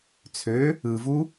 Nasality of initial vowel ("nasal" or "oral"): oral